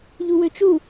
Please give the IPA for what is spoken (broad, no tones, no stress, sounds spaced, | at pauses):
ʎ u w ø t͡ʃ u